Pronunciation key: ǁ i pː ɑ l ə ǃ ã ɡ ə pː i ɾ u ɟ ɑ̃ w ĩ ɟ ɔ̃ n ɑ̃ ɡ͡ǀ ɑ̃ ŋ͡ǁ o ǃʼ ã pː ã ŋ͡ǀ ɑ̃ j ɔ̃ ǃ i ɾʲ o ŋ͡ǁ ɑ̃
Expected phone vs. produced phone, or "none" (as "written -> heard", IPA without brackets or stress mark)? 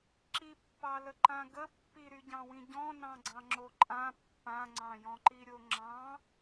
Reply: u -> y